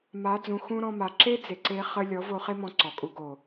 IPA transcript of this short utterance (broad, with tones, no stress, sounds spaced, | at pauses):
m a˨˦ d͡z ũ˨ x ũ˦ ɾ ɔ̃˧ m a˨ ǁ e˦ d͡z e˨ ǀ e˧ χ ə˧ lʲ ɔ˨˦ v o˧ χ e˦ m ɔ̃˧ ǀ ɔ˨ kʼ u˧ ɡ o˨